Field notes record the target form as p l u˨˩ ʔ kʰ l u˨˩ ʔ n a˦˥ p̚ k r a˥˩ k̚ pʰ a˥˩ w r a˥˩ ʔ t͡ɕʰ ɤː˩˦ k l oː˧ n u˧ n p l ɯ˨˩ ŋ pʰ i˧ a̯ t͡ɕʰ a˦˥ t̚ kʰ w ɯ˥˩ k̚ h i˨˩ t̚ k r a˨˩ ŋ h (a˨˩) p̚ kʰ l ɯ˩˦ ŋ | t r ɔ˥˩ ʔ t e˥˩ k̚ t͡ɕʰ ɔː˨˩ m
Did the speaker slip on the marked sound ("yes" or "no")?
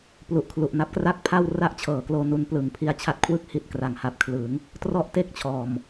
yes